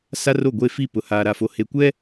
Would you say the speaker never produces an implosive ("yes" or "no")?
yes